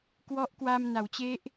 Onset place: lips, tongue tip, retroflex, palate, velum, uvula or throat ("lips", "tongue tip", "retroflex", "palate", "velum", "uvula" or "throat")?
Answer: velum